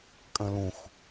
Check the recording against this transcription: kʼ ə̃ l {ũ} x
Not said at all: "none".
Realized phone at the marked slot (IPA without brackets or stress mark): ũ